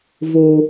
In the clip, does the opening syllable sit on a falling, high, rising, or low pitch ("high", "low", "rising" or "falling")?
low